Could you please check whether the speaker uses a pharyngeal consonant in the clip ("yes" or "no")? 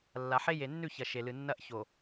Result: yes